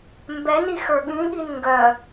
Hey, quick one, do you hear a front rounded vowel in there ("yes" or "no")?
yes